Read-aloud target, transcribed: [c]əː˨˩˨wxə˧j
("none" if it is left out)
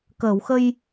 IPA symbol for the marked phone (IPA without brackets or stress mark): k